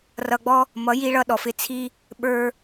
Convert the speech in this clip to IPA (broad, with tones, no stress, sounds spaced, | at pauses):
r ʌ˧ ɡ͡b ɔ˦ | m ʌ˨˦ j i˧ ɭ ʌ˧ ɗ ɔ˨ f ɪ˧ t͡sʰ i˦ | ɓ ə˞˧